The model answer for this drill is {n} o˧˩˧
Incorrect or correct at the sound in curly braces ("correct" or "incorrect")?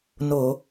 correct